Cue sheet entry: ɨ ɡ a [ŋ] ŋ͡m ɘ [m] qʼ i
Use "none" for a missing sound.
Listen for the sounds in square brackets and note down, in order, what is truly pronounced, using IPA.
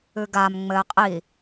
m, none

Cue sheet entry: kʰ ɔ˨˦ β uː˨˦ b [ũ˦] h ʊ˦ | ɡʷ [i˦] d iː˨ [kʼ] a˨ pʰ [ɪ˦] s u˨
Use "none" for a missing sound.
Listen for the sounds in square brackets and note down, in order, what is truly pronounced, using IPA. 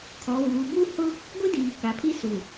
u˦, i˦, k, i˦

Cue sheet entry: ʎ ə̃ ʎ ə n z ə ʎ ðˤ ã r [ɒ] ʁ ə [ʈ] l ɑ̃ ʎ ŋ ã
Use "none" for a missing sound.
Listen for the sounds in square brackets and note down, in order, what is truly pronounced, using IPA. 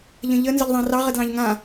ɑ, d

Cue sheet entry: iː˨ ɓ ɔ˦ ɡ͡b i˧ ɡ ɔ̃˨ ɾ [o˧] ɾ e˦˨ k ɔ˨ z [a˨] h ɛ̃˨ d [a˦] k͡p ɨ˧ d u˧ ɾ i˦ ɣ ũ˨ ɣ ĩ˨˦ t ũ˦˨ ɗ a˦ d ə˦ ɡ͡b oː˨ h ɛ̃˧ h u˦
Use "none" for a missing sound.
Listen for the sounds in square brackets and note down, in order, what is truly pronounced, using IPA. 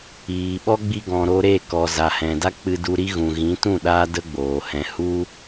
o˧, a˨, a˦

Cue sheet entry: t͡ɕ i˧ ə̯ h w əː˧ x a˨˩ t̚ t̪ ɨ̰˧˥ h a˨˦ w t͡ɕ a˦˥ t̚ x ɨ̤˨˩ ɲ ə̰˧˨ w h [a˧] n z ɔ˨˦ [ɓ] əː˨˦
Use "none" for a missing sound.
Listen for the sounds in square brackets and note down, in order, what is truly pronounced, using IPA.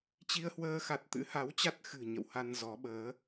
a˧, ɓ

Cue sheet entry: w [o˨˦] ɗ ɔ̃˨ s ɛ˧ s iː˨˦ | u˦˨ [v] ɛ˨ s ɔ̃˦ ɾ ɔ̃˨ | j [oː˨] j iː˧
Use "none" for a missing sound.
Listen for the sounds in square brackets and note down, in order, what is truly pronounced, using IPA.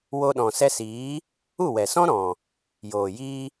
o˧, w, oː˨

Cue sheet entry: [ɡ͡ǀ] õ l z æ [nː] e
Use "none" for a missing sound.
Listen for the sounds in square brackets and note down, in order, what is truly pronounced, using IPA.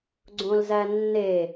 ɡ͡ǀ, nː

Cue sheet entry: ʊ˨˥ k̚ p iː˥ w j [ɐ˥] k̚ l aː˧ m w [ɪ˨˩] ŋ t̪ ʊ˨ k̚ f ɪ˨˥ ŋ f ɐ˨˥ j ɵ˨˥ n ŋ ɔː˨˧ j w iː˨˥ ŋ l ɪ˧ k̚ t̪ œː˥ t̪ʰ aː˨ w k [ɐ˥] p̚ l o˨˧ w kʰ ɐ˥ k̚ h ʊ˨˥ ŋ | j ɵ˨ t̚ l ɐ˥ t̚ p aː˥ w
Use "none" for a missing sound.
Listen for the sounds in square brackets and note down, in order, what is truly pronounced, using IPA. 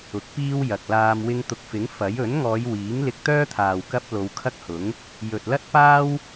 ɐ˨, ɪ˧, ɐ˥

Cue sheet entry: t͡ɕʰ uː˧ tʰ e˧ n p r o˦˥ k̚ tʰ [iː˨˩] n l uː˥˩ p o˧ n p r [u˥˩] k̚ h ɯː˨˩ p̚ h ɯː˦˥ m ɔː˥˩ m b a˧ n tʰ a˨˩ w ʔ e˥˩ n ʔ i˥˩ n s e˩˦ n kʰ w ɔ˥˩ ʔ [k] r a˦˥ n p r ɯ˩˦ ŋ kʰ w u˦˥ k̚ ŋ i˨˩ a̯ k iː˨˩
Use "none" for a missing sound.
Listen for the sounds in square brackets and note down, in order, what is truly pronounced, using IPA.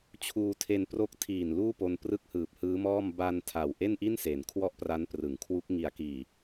iː˨˩, ɯ˥˩, p

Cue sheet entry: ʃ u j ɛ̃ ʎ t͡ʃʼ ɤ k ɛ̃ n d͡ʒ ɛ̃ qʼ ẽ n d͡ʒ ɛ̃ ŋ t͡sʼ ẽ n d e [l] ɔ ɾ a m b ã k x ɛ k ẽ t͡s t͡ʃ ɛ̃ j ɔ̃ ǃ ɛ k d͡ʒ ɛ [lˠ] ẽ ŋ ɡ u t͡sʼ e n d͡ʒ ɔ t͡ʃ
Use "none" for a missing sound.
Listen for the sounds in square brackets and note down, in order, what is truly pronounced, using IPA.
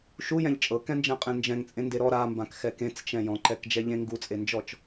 ɾ, ʎ

